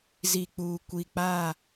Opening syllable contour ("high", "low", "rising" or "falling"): low